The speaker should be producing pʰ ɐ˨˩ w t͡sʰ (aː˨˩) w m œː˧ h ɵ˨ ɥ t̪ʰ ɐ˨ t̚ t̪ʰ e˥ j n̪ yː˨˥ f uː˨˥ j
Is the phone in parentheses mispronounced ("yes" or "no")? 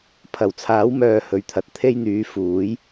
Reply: yes